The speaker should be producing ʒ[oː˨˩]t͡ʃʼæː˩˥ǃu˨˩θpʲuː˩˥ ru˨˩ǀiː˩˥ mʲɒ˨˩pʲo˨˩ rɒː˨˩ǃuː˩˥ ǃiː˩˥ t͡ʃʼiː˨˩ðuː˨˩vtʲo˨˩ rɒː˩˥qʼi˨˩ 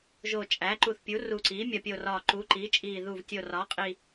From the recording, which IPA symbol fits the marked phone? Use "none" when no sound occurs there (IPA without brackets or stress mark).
oː˨˩